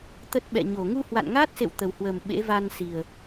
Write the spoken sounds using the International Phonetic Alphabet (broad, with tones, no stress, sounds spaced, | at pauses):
t̪ ə˦˥ t̚ ɓ ɛ̰˧˨ ɲ o˧˩ ŋ u˧ h w a̰˧˨ n ŋ aː˦˥ t̚ s ḛ˧˨ w t̪ ə˨˩ w h w əː˨˩ m ɓ ḛ˧˥ v a˧ n s i˨˩ ə̯